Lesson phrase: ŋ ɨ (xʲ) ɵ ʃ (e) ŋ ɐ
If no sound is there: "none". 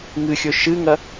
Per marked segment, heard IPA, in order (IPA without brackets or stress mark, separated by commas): xʲ, ɨ